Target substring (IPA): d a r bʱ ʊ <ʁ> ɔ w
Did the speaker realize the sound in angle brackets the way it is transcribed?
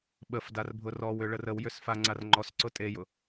no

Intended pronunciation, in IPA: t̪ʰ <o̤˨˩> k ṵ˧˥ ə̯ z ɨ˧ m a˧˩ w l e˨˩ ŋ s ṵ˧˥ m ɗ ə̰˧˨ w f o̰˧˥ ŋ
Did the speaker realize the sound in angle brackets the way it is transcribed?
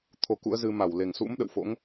no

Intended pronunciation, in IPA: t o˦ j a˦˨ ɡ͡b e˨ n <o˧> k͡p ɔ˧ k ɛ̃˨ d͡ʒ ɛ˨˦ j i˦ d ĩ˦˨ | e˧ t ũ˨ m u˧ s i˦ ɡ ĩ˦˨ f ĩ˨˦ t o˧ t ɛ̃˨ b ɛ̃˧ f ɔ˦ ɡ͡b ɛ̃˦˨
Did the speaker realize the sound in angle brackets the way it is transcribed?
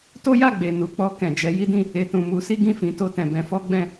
no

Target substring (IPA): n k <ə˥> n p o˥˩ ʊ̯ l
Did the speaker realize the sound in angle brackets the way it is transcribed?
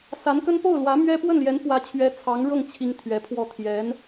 yes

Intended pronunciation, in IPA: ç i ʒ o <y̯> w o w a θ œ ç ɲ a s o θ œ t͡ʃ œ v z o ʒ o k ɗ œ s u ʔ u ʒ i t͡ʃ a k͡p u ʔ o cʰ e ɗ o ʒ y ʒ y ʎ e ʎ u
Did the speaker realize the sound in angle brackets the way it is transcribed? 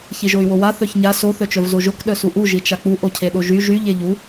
yes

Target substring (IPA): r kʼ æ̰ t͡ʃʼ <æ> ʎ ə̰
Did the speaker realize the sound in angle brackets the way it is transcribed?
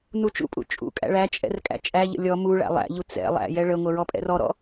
yes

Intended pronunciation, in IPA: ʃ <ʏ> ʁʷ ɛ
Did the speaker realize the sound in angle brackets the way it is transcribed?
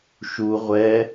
no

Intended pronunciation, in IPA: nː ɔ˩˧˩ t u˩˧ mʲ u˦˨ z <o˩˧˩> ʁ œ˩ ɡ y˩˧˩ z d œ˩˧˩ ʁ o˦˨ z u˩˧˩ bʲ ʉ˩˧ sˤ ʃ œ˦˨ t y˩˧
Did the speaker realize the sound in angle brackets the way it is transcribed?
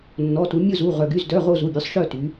no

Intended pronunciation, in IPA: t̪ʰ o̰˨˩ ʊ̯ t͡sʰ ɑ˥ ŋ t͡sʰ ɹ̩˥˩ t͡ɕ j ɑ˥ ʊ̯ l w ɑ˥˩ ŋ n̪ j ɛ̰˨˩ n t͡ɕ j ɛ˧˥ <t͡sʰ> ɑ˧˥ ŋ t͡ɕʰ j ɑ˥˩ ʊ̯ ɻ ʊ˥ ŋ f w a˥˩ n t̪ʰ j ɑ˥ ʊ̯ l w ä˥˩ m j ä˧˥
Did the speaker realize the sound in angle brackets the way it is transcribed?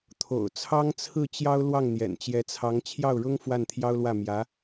yes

